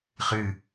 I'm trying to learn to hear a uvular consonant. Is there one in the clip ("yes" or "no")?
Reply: yes